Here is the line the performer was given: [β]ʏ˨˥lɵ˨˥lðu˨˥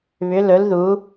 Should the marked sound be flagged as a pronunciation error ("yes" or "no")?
no